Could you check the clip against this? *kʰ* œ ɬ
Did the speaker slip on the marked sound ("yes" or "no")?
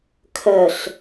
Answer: no